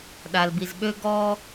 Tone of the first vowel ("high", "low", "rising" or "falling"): low